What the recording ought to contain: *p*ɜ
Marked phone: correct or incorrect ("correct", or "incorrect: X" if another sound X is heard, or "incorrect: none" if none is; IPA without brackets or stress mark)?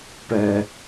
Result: correct